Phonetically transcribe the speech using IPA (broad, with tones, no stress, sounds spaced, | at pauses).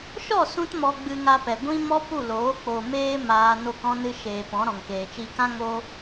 ʃ ɔ˦˨ s ũ˦ t m ɔ˧ ɡ͡b ɨ˧ ŋ a˧ p ɛ˨ ɡʷ ĩ˦ m ɔ˦ p u˦˨ l oː˨˦ k͡p o˨ m eː˦ m aː˧ n o˦˨ k ɔ̃˦ n ɨ˦ ʃ eː˨ p ɔ̃˨˦ ɾ ɔ̃˨ ŋ k eː˨ t͡ʃ iː˧ k ã˦ ŋ o˦